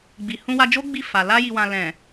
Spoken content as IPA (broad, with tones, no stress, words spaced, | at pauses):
ɡ͡bi˨hũ˧wa˧d͡ʒo˦ ɡ͡bi˦˨fa˨ la˧ji˨wã˨ lɛ̃˨